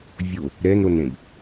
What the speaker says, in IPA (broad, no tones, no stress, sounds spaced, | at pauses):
vʲ o | ɾ ɛ n ɾ o n ɾ ẽ b